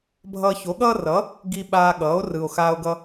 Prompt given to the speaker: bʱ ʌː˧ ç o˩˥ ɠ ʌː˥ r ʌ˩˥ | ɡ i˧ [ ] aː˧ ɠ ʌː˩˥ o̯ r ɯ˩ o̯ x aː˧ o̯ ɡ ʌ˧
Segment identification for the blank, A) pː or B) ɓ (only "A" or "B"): B